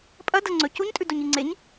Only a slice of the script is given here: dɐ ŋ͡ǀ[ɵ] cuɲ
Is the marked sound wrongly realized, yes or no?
no